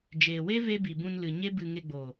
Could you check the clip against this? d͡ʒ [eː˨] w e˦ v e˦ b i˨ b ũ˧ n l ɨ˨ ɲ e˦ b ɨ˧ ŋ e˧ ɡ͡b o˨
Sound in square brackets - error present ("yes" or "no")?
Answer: no